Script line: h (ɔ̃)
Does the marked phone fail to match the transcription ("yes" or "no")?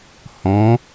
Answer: no